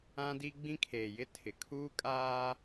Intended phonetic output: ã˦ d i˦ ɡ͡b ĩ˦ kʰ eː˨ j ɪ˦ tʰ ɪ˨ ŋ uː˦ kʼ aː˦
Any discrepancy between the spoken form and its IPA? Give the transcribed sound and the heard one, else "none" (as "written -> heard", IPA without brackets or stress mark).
ŋ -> kʰ